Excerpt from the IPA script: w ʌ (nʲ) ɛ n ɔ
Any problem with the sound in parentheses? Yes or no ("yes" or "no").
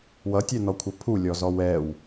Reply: yes